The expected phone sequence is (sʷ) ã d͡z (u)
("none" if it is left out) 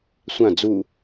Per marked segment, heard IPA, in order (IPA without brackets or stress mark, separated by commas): sʷ, u